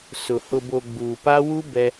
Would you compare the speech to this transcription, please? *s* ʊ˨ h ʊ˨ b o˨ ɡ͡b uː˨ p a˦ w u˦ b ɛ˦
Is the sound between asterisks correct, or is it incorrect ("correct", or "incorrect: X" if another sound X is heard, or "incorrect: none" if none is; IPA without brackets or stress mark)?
correct